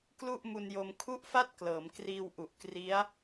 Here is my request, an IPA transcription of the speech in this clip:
klu˥˩ʔmu˧njo˧m kʰu˥˩ʔfa˥˩t̚ klɤː˩˦mkriː˧wʔu˨˩ʔkri˦˥a̯

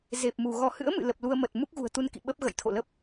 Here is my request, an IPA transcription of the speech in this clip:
ze˨˩p̚mu˧˩ ɣɔ˧˩hɨ̰˧˥ə̯ mɨ̰˧˨lə˨˩p̚ lu˧ə̯mə˨˩t̚ mu˦˥k̚ɣṳ˨˩ə̯t̪u˧nkḭ˧˨ ɓə˦˥p̚ɣə̰˧˨jt̪ʰo̰˧˨lə˦˥p̚

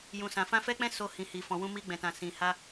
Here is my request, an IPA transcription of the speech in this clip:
jũ˨sã˨ fã˧fɛ˦k͡pɛ̃˦ so˧hĩ˨hi˨ fɔ̃˨wũ˧mi˧ ɡ͡bɛ̃˨tã˨ sĩ˨ha˧

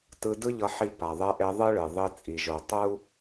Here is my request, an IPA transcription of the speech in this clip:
tɯ˧dɯ˥ʎʌ˧ħi˧ pa˩ðˤɛ˧ʔe˧ ðˤɯ˥ɭɯ˩ ðˤi˧ t͡sʼi˩ʒo˩ tˤu˥

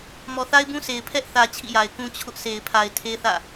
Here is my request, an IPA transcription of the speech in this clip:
mɔ˨θa˦ɪ̯bũ˦se˨ɪ̯ pʰɛ˦ʔθä˨ t͡ɕʰḭ˦˨ja˨ɪ̯kũ˦ t͡ɕʰʊ˦ʔ sʰe˨ɪ̯pʰa˨ɪ̯ tʰe˦θä̰˦˨

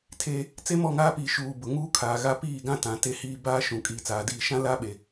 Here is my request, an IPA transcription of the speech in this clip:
tʰeː˦ | t͡se˦mɔ˦˨ŋaː˦piː˨ ʃuː˨ bʊ˨ ŋuː˦kʰaː˨ɣa˦ piː˦˨ɡã˦ tã˨˦te˦hiː˦ baː˦ ʃũ˨ kʼiː˨t͡saː˨diː˦˨ ʃã˦la˦ɓe˨

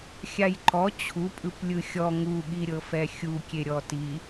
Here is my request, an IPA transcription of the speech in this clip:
xʲajǃɔ t͡ɕʰupʼɯp lʲɯxʲɔ ŋuɠiɾʲɤfɛ xʲukʲe ɾʲɔti

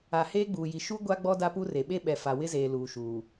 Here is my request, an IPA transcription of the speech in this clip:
a˨heː˦ ɡ͡buː˨ji˨ ʃu˦ ɡʷa˦ɡ͡bɔ˦ da˦pu˦re˨ ɓe˦ɓɛ˨ fa˨wɪ˦zeː˨ luː˨ʃuː˨

